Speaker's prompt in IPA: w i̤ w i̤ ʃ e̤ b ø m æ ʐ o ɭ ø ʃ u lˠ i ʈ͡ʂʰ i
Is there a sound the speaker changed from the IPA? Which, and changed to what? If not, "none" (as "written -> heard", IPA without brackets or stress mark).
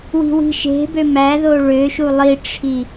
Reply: ʐ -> ð